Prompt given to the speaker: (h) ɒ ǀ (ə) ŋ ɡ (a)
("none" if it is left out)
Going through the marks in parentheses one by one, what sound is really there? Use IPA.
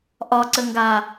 ʔ, ə, a

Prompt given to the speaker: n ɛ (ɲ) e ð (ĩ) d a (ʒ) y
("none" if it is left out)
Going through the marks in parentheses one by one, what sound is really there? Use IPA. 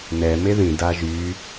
m, ĩ, ʒ

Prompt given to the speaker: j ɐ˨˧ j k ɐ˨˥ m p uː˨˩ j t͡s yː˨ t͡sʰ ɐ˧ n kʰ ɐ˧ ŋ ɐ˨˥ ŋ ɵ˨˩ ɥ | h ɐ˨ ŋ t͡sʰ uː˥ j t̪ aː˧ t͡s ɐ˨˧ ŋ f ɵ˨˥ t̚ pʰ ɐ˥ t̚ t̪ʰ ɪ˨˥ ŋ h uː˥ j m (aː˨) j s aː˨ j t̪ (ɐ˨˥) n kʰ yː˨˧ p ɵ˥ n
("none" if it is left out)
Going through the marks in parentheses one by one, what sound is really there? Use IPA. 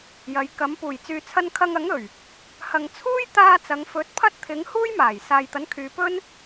aː˨˩, ɐ˨˥

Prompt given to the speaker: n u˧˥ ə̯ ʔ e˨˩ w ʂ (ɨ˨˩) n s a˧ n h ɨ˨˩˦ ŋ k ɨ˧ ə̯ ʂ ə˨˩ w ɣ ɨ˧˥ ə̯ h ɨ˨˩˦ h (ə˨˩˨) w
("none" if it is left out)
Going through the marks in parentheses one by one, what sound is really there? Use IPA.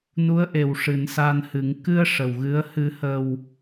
ɨ˨˩˦, ə˨˩

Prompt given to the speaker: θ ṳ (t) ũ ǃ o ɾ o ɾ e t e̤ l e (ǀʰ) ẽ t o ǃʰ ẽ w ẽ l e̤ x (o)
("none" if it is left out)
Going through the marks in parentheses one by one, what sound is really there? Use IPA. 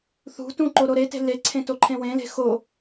t, ǀʰ, o

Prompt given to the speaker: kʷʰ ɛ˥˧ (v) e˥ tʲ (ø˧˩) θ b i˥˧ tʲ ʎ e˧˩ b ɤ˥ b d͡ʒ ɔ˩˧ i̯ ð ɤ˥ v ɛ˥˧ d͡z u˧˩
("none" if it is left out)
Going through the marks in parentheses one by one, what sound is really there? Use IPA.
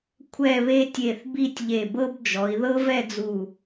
β, e˧˩

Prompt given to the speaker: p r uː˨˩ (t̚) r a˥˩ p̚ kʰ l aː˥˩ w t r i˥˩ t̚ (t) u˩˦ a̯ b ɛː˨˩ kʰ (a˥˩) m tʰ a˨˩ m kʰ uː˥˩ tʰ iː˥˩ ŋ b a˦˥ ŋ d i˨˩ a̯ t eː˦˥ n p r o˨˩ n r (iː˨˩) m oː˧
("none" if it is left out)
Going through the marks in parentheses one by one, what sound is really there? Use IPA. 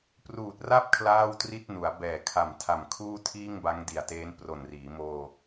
t̚, n, a˨˩, iː˩˦

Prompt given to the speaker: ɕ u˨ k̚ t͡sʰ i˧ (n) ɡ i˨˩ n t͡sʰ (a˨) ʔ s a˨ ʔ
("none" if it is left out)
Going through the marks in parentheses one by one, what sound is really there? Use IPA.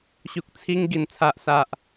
ŋ, a˨

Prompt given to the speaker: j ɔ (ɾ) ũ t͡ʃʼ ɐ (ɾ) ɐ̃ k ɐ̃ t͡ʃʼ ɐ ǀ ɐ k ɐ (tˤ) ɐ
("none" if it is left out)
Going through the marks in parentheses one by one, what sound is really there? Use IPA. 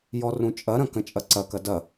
r, ɾ, d

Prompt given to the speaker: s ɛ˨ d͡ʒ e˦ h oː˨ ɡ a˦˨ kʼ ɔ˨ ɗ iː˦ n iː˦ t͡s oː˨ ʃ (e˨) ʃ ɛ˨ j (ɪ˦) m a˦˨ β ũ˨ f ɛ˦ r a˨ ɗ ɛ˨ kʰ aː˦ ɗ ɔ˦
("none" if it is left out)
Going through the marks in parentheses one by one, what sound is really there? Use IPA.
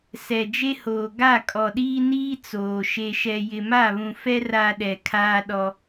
e˨, ɪ˨

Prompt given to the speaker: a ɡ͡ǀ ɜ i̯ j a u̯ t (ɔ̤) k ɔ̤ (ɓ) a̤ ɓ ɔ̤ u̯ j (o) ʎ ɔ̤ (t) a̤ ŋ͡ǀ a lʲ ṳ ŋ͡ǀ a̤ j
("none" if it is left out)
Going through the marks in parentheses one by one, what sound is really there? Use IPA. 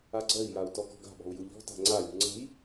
ɔ, ɡ, u, t

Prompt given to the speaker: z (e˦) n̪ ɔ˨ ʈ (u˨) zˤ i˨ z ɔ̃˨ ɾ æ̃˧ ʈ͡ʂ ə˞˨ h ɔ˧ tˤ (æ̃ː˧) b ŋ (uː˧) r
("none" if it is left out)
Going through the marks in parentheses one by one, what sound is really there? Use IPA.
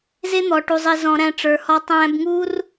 e˦, u˨, æ̃ː˧, uː˦

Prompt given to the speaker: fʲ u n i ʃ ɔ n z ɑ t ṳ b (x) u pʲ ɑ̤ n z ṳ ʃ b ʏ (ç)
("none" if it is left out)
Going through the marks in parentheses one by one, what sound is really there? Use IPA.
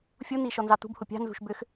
h, x

